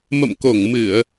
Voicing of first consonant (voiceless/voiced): voiced